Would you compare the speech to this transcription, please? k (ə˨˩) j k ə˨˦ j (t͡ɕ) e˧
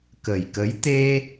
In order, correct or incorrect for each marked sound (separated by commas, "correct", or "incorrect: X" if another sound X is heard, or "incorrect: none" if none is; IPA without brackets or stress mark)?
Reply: correct, incorrect: t̪